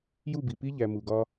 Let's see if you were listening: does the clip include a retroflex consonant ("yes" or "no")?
no